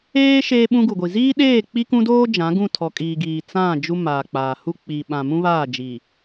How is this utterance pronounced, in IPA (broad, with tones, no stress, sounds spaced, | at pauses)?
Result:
eː˦ ʃ eː˦ ɓ ũ˦ ɡ u˨ ɡʷ i˨ z iː˦ ɗ eː˦˨ k͡p i˦ k ũ˦ d oː˦ d͡ʒ ã˨˦ ɡ ũ˦˨ tʰ ɔ˨ kʼ iː˨ ɡ iː˨ t͡s ã˦˨ d͡ʒ u˦ m aː˨ k͡p aː˨ h u˦ k͡p i˨ ɓ ã˨ m ũ˦ β aː˦˨ d͡ʒ i˨